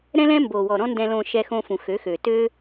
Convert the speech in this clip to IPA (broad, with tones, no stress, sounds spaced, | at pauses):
ɾ ɛ̃˦ l ɛ̃˦ m b o˨ w ɔ˨ ɾ ɔ̃˦ n d ɛ̃˧ l õ˧ ʃ ɛ˧ x õ˧ f ũ˨ x ø˨˦ x ø˨ t ø˦